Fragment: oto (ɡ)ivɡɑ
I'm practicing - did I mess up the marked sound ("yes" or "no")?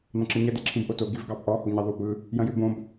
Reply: no